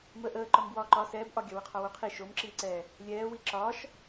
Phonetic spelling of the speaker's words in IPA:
m əː ʔ əː ǃ ɒ m b w ɒː ǃ ɒ s ɛː b ʔ ɒ ɡʲ ɒ w ə qʰ ɒ w o qʰ i ʃ o m ǁ iː ǀ ɛː | lʲ ɛː w i ǁ ɒː ʃ

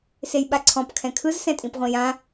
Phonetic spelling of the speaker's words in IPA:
s e j ɓ a ǀʰ ɔ̃ p kʰ ɛ̃ kʰ ɯ z s ɛ̃ tʼ ĩ p ʁʷ ĩ j ã

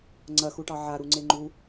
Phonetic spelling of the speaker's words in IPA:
ŋ͡ǀ ɐ x u ʈ ɑ ʕ a ɾ u ŋ͡ǀ e ŋ͡ǃ u

